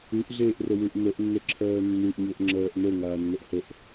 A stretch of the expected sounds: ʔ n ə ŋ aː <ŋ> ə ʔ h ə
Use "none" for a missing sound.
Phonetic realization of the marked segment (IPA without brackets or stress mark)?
nː